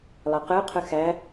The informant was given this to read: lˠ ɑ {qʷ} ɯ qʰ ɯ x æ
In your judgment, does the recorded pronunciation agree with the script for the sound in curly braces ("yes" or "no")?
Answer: no